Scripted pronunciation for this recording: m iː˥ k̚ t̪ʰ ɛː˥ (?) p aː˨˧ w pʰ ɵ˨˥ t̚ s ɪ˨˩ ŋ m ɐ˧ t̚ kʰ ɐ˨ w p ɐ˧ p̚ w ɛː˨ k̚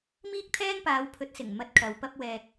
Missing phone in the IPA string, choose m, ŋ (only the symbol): ŋ